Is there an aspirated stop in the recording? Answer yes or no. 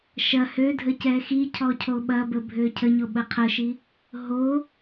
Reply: yes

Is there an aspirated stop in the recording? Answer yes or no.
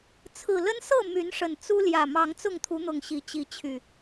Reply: yes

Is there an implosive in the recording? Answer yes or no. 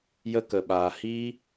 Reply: yes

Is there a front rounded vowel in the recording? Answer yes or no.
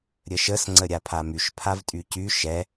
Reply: yes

